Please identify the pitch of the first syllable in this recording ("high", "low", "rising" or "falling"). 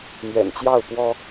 low